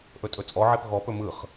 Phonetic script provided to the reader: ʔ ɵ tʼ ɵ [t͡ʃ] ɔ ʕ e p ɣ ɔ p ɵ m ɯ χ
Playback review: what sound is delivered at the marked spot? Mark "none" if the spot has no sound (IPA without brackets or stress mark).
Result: t͡sʼ